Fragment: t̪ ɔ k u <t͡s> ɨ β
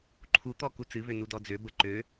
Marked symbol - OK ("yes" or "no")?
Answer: yes